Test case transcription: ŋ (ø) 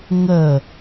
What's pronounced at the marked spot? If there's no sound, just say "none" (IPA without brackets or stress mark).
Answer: ə